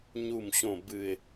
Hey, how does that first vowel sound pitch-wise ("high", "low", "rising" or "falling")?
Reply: low